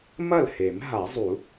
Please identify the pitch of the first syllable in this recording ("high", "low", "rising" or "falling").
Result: falling